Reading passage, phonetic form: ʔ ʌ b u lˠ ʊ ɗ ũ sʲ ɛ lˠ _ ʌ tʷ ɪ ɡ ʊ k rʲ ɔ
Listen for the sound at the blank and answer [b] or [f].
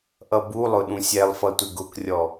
f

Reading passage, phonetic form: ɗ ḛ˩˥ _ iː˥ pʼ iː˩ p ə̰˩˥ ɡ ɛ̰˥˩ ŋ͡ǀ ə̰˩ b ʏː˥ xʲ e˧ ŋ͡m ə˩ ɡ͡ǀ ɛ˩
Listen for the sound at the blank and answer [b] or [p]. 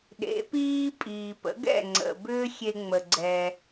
p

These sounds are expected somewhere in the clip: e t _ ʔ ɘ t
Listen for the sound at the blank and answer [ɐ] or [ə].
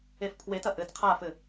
ɐ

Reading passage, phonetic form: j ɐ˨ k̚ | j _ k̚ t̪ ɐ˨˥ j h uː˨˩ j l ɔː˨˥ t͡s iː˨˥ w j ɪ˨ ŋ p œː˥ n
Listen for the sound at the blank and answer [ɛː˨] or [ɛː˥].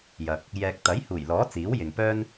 ɛː˨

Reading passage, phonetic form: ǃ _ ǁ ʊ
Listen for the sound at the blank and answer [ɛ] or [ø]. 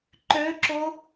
ø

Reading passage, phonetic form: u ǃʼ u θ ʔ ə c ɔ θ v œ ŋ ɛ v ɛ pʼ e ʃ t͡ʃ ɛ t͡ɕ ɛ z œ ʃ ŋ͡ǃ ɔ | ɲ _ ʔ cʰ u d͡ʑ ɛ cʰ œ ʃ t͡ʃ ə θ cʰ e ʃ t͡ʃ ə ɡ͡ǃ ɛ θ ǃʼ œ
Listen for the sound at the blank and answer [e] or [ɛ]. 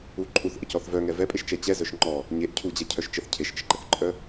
e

